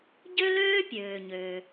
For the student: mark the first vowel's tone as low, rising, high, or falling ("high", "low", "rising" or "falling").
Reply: high